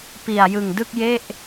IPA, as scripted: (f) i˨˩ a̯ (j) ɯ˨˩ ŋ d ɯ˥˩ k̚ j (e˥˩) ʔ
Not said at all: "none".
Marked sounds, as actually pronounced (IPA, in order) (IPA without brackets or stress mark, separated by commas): p, j, e˥˩